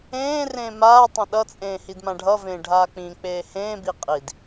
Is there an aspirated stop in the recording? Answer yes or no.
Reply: no